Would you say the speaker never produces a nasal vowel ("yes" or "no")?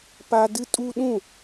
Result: no